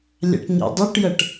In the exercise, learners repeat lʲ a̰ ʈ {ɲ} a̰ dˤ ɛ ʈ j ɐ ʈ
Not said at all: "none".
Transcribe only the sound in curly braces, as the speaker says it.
ɲ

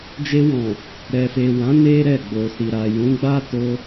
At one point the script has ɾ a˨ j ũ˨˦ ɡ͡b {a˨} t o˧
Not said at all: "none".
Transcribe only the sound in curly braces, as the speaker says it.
a˦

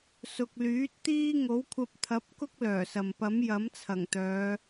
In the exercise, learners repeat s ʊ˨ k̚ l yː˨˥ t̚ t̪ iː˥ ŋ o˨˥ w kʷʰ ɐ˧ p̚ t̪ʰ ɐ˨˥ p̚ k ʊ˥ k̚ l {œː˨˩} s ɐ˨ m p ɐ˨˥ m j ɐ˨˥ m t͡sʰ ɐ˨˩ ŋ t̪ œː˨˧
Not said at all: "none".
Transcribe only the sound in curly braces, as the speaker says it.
œː˨˩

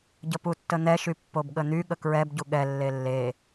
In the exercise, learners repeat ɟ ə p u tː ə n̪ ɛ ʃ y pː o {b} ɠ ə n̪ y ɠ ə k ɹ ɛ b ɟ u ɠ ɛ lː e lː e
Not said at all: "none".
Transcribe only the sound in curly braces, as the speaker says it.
b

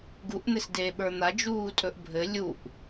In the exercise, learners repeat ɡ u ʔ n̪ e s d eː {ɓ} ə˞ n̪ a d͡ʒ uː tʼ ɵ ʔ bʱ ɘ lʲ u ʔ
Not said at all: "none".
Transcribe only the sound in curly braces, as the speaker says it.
ɓ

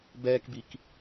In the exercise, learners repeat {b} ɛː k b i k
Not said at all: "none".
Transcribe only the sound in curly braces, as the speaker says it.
b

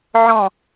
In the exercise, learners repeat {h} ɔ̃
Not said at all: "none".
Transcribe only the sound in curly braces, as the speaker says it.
ʕ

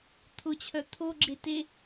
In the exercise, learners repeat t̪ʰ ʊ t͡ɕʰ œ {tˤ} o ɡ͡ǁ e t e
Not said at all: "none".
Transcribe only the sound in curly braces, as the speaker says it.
t̪ʰ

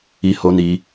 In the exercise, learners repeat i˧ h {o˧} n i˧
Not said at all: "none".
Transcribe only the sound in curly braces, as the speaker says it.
o˧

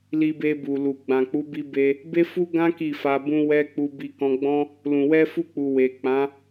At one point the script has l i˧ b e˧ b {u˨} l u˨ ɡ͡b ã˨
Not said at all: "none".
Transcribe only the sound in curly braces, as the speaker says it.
u˨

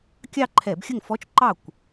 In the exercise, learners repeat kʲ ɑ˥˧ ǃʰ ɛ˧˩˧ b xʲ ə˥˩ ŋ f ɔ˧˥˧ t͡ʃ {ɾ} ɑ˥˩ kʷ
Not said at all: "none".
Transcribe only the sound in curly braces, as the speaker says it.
ǃ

